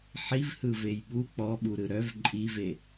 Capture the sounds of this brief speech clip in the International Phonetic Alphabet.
ħivhɯ vejɓu k͡pɔɓuɾɯ ɾœv ǃʼive

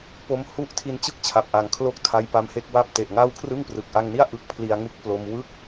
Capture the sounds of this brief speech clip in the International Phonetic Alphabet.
po˧mhu˥˩ʔ tʰi˧nt͡ɕɯ˥˩k̚t͡ɕʰa˨˩p̚ʔa˩˦ŋ kʰlo˥˩k̚tʰa˦˥jpa˧m he˥˩k̚wa˥˩p̚ te˨˩ʔŋa˥˩w kʰrɯ˥˩ŋprɯ˨˩k̚ ʔa˧ŋni˥˩a̯ ʔɯ˦˥k̚ pʰli˧a̯ŋu˦˥k̚plo˧m wɯ˥˩k̚

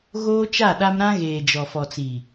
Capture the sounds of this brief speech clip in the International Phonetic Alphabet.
ɣoː˦t͡ʃa˦˨ɗa˦m ɾã˦ɣeː˨d͡ʒɔ˨ fɔ˨t͡si˨

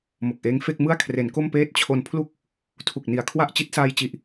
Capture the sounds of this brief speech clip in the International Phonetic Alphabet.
mo˨˩k̚ʔeː˦˥ŋ fe˥˩k̚mɯ˥˩a̯kʰre˩˦n ko˥˩mpeː˥˩t̚ t͡ɕʰo˧n pʰlu˥˩k̚ | tʰu˨˩k̚ni˨˩a̯ kʰwa˥˩ʔ t͡ɕi˦˥t̚saː˧jt͡ɕi˨˩ʔ

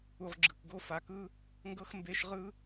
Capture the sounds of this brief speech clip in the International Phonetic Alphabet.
u˨ʁɡ͡ǁɯ˩kɡo˥ fa˨kɯ˥ | ŋɡɤ˦x mbe˦ʃʁɯ˥

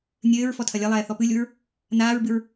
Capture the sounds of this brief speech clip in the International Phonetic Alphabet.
nʲɘːɹ fɔtʰɐlʲɐlˠɛː θɔpɨlʲuɹ | naːɹbɨɹ

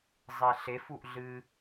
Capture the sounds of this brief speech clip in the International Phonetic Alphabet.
zˤeɬefuʔ ɮɨ

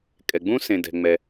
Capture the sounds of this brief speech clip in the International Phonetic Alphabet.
kʼɛ˩ɡ͡bũ˦ sẽ˩dɛ̤˩ŋ͡mɛ˩

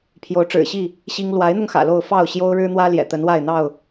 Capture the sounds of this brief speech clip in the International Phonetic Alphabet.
pʰjo˨˦ʊ̯ʈ͡ʂɻ̩˨˩ɕi˥˨ | ɕi˦ŋ lwa˨˦ɪ̯n̪ʊ˧ŋ xä̰˨˩lo˥˨ʊ̯ fɑ˥˨ʊ̯ ɕjo˦ʊ̯ɻɻ̩˦n̪wä˦ ljɛ̰˨˩t̪ə˨˦nwa˥˨ɪ̯ n̪ɑ˥˨ʊ̯

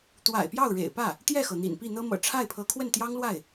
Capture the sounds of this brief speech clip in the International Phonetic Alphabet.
t̪wa̰˨˩ɪ̯pjɑ˥˩ʊ̯ ɻḛ˨˩ɪ̯pä˥˩ | t̪jɛ˥˩xɤ˩ n̪ḭ˨˩npi˥˩n̪ɤ˥mɤ̰˨˩ ʈ͡ʂʰa˥˩ɪ̯pʰɤ˧˥ kʰwə˥˩nt̪jɑ˥ŋlwa˥˩ɪ̯

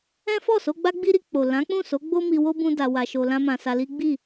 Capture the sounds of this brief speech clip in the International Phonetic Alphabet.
ɛ̃˦ fɔ˦˨so˧ɡ͡ba˦ ɡ͡bi˦ɾi˧k͡po˨ lã˨˦k͡pũ˦˨so˨˦ɡ͡bo˦ mi˧wo˦ bũ˦da˧wa˧ʃo˧ lã˦mã˧sa˧ li˦ɡ͡bi˦˨

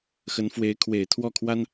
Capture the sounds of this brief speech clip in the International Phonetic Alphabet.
xə˧˥nfwe˧˥ɪ̯ kʰwe˨˩ɪ̯t̪ʰwɔ˥˩kʰwa˥n

